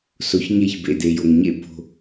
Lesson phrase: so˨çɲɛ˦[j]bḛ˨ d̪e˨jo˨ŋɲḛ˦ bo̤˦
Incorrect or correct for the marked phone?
incorrect: ç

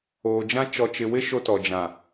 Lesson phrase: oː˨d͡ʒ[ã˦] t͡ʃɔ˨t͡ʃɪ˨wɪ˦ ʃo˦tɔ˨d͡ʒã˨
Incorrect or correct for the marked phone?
correct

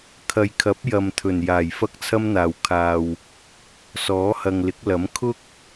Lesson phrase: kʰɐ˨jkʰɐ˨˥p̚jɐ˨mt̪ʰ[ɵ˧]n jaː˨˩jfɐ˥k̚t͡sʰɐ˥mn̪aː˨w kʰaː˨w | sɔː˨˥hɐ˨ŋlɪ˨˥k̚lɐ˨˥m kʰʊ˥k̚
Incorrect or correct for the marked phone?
incorrect: ɵ˨˩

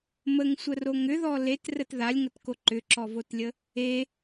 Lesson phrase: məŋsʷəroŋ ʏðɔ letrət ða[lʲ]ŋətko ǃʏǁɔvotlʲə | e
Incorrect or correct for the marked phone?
correct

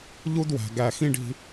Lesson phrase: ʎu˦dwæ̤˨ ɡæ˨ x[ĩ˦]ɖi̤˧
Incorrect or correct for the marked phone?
correct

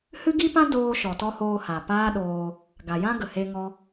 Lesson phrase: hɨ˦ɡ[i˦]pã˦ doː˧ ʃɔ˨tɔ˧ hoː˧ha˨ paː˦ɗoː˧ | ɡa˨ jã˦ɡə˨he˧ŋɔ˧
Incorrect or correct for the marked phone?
correct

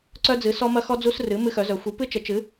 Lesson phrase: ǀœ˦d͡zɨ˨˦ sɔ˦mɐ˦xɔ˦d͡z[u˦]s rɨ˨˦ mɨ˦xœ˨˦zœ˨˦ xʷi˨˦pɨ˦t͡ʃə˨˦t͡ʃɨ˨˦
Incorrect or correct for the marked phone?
correct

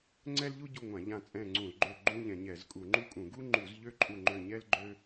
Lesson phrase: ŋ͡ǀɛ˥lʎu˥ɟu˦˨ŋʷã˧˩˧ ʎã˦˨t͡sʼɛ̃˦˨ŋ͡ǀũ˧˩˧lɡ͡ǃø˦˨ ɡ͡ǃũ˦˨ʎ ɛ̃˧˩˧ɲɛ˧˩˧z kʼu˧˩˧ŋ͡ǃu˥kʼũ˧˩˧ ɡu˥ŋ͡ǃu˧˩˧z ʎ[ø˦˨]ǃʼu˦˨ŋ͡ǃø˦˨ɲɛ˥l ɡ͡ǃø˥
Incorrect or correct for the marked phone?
incorrect: ø˥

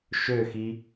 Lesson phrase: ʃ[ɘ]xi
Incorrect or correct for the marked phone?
incorrect: ø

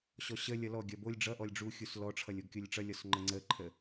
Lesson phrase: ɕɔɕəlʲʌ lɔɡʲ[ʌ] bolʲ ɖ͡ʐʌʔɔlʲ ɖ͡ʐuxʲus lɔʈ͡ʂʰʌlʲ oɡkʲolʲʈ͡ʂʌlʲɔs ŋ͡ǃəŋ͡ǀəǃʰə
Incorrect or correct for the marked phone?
correct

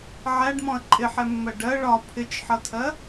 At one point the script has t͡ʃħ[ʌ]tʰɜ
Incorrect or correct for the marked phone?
correct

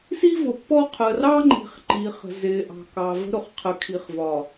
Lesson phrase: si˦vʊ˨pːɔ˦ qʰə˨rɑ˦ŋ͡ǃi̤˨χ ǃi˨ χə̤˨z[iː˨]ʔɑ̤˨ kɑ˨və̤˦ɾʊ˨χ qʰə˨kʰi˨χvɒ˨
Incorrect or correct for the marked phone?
incorrect: ɪː˨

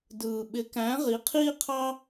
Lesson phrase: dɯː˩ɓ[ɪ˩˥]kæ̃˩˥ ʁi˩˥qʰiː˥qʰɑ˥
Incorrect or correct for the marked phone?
correct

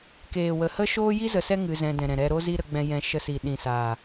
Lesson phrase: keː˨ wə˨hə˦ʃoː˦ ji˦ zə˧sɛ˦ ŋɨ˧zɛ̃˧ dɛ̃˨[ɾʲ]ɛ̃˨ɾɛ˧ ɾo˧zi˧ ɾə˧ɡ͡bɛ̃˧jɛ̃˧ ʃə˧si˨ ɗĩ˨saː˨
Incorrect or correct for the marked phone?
incorrect: ɾ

